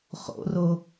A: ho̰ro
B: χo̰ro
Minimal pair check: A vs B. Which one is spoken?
B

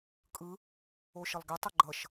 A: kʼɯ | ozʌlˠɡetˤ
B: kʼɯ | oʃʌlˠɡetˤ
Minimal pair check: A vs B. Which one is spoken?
B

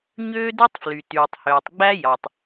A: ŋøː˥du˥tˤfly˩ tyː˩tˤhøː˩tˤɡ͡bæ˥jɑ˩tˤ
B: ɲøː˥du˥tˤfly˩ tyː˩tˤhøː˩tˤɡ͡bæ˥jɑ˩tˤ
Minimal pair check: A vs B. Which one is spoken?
B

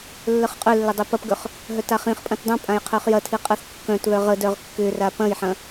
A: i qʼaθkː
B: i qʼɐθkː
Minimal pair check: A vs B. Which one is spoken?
B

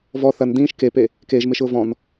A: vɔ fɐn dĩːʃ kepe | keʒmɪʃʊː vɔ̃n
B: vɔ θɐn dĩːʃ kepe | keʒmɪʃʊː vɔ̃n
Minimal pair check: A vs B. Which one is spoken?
B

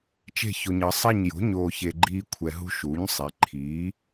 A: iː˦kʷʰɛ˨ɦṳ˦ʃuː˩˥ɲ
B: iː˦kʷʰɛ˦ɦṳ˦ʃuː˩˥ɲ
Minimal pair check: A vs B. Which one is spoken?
A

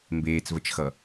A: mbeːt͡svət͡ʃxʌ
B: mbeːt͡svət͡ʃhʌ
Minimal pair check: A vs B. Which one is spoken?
A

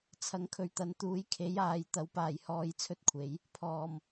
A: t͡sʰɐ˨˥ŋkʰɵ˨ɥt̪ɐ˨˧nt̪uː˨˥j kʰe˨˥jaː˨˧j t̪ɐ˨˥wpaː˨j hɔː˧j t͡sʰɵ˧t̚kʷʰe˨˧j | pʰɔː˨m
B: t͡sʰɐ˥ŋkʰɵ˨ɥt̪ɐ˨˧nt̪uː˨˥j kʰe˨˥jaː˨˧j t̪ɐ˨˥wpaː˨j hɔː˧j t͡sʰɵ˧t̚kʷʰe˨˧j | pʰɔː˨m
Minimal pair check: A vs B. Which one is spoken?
A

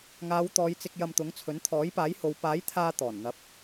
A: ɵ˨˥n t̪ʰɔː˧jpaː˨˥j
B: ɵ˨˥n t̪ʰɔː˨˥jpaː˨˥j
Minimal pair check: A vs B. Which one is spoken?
B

